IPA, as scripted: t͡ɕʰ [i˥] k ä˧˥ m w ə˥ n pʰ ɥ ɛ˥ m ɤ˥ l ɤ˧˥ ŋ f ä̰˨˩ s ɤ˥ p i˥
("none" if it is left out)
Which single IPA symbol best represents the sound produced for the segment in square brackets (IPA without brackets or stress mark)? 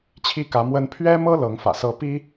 i˥